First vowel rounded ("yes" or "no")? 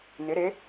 no